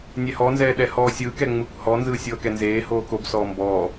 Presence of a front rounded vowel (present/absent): absent